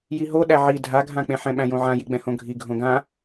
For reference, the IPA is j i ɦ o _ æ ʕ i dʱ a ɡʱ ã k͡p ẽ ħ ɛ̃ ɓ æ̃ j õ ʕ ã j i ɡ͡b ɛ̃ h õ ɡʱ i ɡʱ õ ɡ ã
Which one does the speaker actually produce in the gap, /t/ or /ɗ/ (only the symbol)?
ɗ